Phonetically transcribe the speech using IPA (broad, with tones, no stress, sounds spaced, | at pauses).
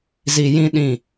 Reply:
z i˨ j ĩ˦ ɗ ĩ˦˨